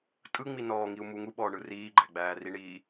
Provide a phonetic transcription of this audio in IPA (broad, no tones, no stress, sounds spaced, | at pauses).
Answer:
tʼ ɯ ŋ͡m i n ɔː ŋ i u̯ m u ŋ u ɓ ɔː ɳ ɯ r iː ɡ͡ǃ æ ɡ͡b æː r i ɳ iː